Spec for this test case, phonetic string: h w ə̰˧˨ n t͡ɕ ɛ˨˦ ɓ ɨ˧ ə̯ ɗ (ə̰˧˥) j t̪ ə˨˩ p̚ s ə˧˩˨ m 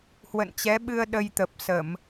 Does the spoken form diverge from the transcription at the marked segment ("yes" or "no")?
yes